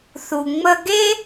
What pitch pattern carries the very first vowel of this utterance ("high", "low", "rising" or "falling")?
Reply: low